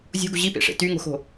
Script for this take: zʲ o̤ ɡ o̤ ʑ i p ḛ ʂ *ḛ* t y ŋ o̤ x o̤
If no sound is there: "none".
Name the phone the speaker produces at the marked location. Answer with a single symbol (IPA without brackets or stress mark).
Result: ḛ